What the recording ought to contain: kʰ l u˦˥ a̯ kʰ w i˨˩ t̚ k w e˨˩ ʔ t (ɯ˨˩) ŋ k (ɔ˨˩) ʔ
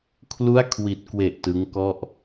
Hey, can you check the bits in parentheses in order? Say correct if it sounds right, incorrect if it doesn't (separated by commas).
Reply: incorrect, incorrect